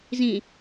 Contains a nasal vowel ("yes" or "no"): yes